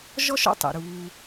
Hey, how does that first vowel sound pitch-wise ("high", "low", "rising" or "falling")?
high